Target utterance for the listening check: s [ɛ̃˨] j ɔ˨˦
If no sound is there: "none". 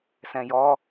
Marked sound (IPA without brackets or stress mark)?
ɛ̃˨